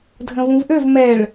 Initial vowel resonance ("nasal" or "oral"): nasal